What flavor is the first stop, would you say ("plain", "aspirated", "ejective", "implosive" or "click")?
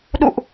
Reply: implosive